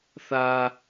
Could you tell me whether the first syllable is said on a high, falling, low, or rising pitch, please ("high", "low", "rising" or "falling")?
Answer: low